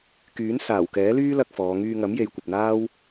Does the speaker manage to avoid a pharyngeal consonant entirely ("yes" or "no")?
yes